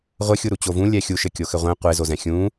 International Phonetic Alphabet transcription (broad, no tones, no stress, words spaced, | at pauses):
ʁʷɘxʲuɾu t͡ɕovũ lʲɛxʲuʃɘ kʲoxɘʁʷẽ qʷe zozɛ̃xʲũ